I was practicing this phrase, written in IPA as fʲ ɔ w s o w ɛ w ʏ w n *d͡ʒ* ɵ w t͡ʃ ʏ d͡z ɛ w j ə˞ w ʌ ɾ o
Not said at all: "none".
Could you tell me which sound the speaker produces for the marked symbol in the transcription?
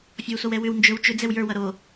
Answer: d͡ʒ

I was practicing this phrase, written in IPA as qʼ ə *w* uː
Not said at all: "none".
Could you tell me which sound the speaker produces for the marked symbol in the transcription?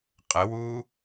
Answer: w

